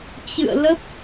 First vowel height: high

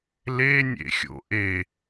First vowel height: mid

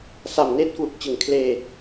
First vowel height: low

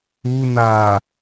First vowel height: high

